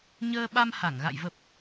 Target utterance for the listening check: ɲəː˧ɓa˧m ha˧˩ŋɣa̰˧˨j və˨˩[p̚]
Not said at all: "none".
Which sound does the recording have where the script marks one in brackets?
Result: p̚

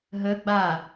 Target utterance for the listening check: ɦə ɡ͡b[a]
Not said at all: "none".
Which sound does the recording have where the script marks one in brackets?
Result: a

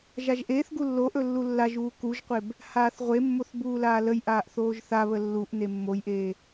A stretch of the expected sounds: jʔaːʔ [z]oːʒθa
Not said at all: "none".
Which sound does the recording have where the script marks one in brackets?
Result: θ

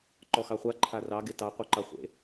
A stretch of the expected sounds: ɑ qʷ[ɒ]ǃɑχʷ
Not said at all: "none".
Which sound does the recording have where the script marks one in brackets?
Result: ɑ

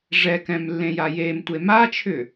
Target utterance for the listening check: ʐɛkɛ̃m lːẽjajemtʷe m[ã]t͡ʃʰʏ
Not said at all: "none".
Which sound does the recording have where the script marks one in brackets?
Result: a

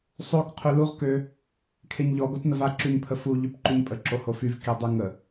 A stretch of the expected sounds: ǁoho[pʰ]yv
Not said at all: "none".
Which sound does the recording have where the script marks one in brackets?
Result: f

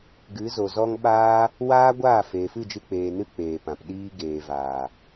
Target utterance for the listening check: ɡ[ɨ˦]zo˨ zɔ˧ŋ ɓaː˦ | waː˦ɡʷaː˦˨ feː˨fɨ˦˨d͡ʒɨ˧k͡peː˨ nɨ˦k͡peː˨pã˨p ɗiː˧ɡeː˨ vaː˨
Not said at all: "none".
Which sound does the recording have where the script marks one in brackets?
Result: ɨ˨˦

